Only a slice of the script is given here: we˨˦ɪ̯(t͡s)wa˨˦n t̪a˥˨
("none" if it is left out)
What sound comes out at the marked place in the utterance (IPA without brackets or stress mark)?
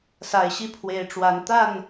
ʈ͡ʂ